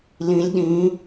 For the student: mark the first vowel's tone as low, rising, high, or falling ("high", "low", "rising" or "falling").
rising